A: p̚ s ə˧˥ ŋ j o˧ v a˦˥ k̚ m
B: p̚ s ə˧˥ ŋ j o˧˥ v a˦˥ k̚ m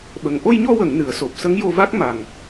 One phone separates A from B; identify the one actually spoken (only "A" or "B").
A